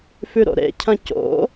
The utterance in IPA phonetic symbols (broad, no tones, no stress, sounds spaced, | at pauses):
f ʉ ɾ o̰ ɾ ḛ cʰ ɐ̃ c o̰